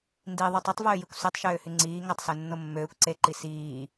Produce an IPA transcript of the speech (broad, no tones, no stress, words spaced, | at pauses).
ndiðˤy tˤøtˤvøːjikʷ sytˤʃøːhy ŋ͡ǀiː ŋɑtˤsønːo mːøːkʷ ǀeǃi siː